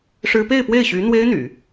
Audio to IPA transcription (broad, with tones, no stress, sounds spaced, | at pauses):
ʂ ɻ̩˥ p e˥˧ ɪ̯ p w e˥˩ ɪ̯ ɕ y˧˥ n̪ w e˥ ɪ̯ n̪ y̰˨˩˦